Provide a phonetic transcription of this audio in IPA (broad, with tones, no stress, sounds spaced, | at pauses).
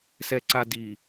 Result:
s ɛ˨ ǀ a˨ d i˨